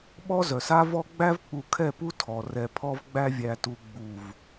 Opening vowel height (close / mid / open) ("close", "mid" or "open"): mid